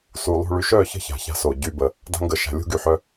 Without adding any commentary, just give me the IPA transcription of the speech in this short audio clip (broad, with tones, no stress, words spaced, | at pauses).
su˨˩lˠṳ˥˨ ɭy˧ ʃœ˥˨ çə̤˥˨ça̤˨˩ça̤˧so˨˩ ɟy˧bə˨˩ | da̤˧ŋɡə˨˩ʃa̤˨˩ lʲṳ˥˨ɡy˨˩ħœ˧